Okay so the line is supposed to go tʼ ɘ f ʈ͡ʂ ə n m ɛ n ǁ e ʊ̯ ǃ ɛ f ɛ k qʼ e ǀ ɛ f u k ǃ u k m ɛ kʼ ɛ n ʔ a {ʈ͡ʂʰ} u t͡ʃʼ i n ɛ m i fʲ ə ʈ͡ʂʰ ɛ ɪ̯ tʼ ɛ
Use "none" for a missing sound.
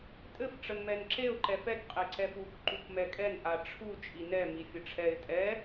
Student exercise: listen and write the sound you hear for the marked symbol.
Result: ʈ͡ʂʰ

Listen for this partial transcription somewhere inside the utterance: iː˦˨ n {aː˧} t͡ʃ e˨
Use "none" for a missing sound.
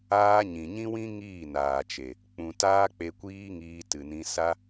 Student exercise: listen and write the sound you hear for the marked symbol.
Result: aː˨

